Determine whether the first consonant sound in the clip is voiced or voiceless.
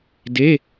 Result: voiced